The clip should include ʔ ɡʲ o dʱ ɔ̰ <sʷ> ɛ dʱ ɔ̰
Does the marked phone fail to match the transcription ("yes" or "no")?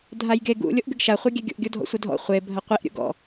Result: no